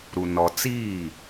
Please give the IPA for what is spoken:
ɾu˦nɔ˦ t͡siː˦˨

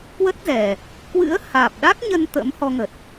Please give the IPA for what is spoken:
kwə˦˥t̚zɛ˨˩ | kwɨ̰˧˥ə̯haː˨˩p̚ɗa˦˥k̚ɲə˧n t̪ə̰˧˥m hɔ˧ŋə˨˩t̚

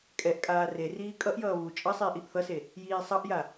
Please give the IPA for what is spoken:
kʼɛʔkʼaː reriː kʼʌʔjʌː βu t͡ʃʼʌsˤiːʔ iʔθʌse | jiːsˤʌʔja

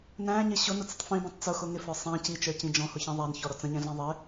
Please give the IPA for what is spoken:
næ̃ɲɪ ɕʊnʊt͡sətˤ fĩbĩtˤ t͡sʊxʊ ŋɪfə˞ sˤɛ̃ cit͡ʃə˞cĩ d͡ʒɔ̃hʊçĩ ðˤænçɔɾɔ t͡sə̃ɲɛ̃ɮɛ̃ ðˤɪ

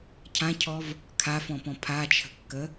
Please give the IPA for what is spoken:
cʰãcʰɔv | kʰafɔ̃pɔ̃ pʰat͡ʃʰə̤kːə

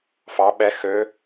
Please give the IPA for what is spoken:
fɑ ɓɛ xø

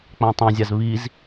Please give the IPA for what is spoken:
k͡pãtˤãzʲaz βiz

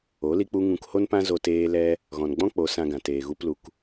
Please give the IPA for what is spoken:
o˨˦ li˧k͡pu˧ ŋũ˧kho˦npã˦zo˧ teː˧lɛ˧ | ɣɔ̃˨nɡ͡bɔ̃˦k͡po˨˦ sã˧ɡã˨teː˨ ɣu˧plu˨k

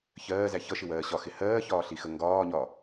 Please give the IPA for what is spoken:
çɜːzæ çʌʃɪwɜː ɕɒxɪ hɜːçɒːɬixə ŋɡɒːɲɒ

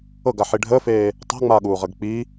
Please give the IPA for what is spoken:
ɤɡaħi ɖʱəːfeː | tˤa̤ŋ͡maːɠuːʁəɡ k͡pi

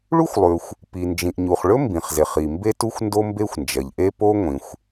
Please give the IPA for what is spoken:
ɭu˥xʷlˠʉ˩xʷ | pi˩ nd͡ʒĩ˩ʔɲu˩χɭɵ˥ mbĩ˩χze˩χi˩ mbe˥tu˥xʷ ndo˥mbe˥xʷnd͡ʒɐ˩ʎ ʔe˥po˥ ŋʷĩ˩xʷ

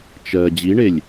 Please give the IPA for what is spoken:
t͡ʃɜ d͡ʑiɳelʲ

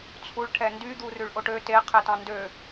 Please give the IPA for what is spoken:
t͡sʰuɭ ʈʰɛndy d̪urʉɭʔoʈø te qʰɛtɑ̃ndø

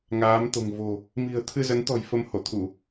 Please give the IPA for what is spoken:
ŋaː˨˦mt̪o̤˨˩ŋ vo̤˨˩ | mi̤˨˩ə̯t̪ʰɨ˧zə˨˦nt̪ɔ̤˨˩j fə˧m ho˧˩t̪ʰu˧˩˨

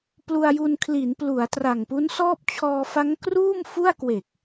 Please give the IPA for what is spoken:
plu˧a̯ju˧nkʰli˩˦nplu˩˦a̯ tra˨˩ŋpu˦˥nsɔː˥˩p̚ t͡ɕʰɔː˧fa˦˥ŋ kruː˥˩mfu˥˩a̯kwe˨˩k̚

